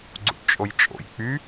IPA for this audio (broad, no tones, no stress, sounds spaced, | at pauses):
ɡ͡ǀ ṵ ʈ t͡ʃʼ o j t͡ʃʼ o̰ j k͡p y